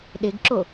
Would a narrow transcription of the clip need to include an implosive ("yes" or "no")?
yes